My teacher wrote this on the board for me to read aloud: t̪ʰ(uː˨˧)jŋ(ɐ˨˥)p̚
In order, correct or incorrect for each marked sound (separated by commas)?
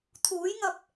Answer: incorrect, incorrect